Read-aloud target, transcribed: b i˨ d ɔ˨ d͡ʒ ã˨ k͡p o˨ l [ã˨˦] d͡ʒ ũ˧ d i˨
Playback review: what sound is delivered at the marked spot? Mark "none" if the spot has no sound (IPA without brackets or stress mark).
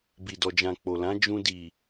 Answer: ã˨˦